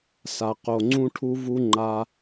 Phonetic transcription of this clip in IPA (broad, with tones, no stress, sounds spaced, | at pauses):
s a˨ q o˨ ŋ͡ǀ ũ˦ ʈʰ u˦ v u˦ ŋ͡ǃ a˧